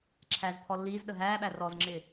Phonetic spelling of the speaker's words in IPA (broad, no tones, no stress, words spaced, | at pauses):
ǁʰæzpʰɔ lːiːzɗə ɦæːɓæ rɔzŋ͡ǁɪː